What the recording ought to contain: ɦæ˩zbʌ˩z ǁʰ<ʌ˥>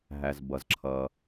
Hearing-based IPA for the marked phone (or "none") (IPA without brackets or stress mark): ʌ˩